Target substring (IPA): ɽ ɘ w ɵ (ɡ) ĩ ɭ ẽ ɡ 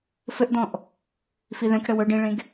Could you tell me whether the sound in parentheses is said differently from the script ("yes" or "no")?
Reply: yes